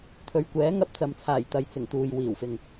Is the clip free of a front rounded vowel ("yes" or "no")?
yes